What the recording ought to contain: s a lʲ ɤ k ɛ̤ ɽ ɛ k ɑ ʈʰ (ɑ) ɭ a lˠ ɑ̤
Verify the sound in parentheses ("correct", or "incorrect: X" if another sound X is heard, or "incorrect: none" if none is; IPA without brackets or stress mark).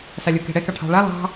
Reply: incorrect: ɑ̤